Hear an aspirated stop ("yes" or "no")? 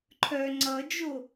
yes